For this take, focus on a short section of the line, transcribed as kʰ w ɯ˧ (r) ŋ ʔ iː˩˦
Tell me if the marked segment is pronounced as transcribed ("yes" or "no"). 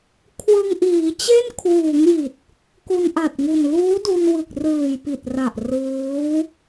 no